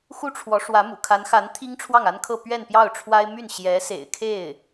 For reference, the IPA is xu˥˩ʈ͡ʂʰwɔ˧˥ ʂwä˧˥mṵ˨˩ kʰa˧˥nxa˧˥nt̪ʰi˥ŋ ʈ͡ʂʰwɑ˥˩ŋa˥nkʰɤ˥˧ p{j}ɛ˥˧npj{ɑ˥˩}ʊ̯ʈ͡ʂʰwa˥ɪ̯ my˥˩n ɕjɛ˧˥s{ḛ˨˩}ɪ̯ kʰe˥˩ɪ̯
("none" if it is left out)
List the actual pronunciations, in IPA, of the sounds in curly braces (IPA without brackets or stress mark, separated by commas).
ɥ, ɑ˥˩, ḛ˨˩